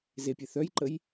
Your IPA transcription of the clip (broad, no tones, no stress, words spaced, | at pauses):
zepʲe θœjǃəj